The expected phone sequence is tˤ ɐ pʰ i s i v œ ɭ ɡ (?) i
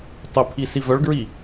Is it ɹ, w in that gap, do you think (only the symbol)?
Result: ɹ